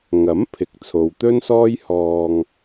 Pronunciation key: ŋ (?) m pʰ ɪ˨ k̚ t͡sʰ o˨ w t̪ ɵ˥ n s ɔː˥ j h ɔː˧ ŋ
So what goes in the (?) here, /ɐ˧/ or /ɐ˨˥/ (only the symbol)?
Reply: ɐ˨˥